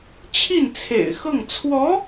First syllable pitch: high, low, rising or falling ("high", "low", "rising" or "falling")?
falling